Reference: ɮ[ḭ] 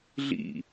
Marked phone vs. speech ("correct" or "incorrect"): correct